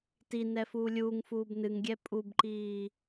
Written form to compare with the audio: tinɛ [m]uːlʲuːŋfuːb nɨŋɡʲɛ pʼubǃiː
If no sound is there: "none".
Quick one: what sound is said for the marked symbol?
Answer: f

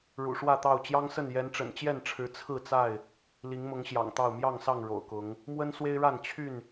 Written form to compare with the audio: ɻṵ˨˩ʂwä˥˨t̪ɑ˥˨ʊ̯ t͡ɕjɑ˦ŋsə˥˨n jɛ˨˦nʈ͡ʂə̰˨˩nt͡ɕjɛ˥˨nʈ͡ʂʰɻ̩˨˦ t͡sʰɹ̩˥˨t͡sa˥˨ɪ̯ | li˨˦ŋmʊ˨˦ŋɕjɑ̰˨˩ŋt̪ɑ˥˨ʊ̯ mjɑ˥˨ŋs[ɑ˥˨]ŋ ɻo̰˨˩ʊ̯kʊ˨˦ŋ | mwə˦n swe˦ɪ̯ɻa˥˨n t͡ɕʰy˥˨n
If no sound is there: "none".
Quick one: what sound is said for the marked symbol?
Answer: ɑ˥˨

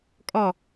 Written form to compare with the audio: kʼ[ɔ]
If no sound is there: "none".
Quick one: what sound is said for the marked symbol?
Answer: ɔ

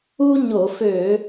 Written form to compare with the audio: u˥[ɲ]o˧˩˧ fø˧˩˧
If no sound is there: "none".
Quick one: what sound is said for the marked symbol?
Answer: ɲ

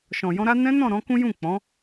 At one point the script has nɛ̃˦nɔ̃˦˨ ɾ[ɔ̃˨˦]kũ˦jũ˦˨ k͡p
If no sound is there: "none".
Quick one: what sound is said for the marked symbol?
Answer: ɔ̃˨˦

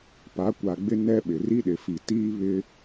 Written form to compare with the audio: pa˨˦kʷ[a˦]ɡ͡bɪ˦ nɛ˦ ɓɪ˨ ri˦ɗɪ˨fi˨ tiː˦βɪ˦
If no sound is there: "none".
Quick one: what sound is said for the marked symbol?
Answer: a˨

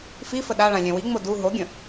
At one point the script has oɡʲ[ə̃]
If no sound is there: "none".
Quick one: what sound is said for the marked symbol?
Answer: ə̃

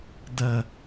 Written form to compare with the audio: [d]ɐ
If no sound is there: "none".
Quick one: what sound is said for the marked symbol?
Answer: d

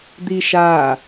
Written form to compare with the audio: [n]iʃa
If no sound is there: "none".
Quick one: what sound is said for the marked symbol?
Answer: d̪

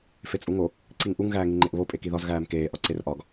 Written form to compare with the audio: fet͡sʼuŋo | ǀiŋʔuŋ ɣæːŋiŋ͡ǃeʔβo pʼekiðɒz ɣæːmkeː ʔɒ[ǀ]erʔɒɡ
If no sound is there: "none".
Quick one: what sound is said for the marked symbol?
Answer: ǀ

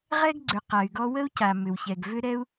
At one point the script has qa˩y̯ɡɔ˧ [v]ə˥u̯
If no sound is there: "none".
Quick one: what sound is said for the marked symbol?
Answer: w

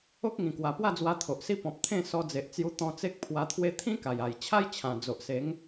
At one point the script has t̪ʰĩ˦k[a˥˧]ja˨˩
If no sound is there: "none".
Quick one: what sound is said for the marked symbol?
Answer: a˨˩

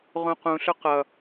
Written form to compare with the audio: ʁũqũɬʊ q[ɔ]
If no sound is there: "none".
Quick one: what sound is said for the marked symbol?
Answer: ʌ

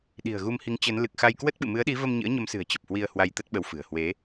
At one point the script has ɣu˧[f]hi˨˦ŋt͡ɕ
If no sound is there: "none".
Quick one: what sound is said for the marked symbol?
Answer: m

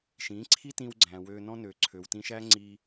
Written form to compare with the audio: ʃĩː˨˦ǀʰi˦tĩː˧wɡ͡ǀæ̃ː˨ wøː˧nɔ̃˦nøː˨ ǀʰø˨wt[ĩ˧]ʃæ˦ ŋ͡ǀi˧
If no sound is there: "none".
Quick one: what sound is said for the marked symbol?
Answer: ĩ˧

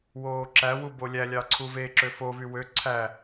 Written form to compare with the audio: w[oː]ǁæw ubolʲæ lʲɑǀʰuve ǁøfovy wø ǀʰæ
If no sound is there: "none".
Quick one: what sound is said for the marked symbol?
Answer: oː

